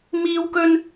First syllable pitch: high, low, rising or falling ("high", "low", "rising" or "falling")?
high